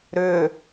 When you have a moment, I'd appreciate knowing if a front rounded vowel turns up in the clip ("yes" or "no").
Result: yes